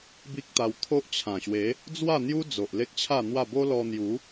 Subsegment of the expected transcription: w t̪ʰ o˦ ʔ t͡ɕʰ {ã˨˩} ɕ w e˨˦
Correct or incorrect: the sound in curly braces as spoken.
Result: correct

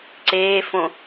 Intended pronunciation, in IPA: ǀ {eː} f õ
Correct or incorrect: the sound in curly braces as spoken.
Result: correct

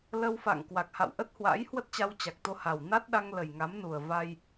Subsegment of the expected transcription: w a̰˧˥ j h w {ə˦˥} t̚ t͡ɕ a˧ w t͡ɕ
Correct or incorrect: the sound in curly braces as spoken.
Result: correct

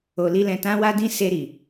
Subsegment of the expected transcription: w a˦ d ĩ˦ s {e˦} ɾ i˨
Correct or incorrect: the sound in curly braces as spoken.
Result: incorrect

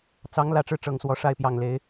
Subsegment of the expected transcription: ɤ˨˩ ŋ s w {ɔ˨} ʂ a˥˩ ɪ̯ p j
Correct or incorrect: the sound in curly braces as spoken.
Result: incorrect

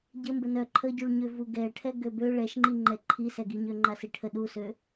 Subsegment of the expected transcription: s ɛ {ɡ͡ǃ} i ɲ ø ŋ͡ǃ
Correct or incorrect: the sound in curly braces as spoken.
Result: incorrect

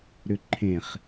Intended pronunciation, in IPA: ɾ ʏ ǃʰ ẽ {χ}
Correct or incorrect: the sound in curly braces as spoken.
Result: correct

